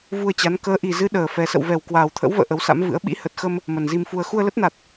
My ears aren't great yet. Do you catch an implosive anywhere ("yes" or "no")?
yes